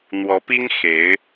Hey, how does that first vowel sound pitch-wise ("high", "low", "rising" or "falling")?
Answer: rising